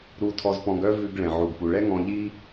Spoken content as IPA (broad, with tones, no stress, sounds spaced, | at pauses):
ɾ u˧ tʰ ɔ˧ z p ɔ̃˧ ɡ œ˥ v ʉ˧ ɡ ɭ ɛ̃˩ ʕ u˩ ɡ p u˩ ɭ ɛ˥ ŋ ɔ̃˧ ʎ i˥